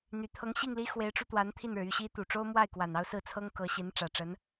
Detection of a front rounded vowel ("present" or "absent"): present